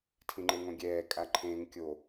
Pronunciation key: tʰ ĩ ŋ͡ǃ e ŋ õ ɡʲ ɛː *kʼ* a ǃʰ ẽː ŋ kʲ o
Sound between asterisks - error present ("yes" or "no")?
no